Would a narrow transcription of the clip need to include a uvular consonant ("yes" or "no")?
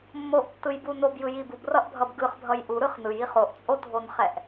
yes